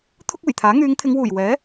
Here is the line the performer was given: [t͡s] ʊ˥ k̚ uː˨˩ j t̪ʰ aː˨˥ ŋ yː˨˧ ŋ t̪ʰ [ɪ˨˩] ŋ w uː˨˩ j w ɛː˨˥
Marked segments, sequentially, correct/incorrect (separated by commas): incorrect, incorrect